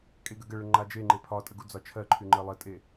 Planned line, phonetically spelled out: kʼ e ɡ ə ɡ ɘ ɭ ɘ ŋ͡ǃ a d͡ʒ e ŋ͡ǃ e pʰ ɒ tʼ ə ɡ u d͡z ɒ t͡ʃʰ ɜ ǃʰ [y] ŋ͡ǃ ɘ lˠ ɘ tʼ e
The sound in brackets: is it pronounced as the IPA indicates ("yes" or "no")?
yes